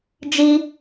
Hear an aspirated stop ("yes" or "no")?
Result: no